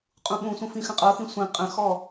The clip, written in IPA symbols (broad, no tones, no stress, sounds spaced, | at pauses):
qʼ ũ ɓ ũ sʷ ə̃ f ĩ x ə̃ qʼ ɤ x ĩ sʷ ĩ qʼ ə̃ x ɔ